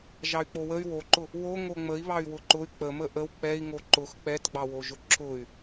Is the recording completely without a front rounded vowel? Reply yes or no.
no